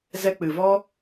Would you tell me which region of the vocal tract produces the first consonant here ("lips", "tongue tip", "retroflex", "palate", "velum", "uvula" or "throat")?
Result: tongue tip